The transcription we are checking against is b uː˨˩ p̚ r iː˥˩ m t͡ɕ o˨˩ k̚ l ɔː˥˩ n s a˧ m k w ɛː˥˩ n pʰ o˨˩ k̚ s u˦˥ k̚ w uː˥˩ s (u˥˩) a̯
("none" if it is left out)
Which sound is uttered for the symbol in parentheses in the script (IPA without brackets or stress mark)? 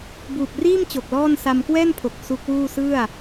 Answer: ɯ˥˩